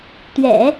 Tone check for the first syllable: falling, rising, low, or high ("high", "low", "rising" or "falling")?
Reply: low